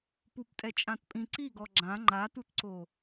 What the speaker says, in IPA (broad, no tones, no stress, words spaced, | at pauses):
puptʼɛt͡ʃʼãtpʼĩ ǀiɡɔ ɡ͡ǁã ŋ͡ǃatutǀo